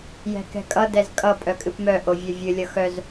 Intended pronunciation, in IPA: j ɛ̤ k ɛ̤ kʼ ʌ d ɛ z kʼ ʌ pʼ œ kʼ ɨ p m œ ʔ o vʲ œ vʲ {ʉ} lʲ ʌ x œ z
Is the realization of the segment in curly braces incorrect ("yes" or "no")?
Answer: yes